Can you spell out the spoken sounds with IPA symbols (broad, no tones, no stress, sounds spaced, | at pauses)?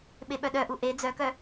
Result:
ɓ e ɓ œ ɗ œ ʔ u ʔ e d͡z œ k œ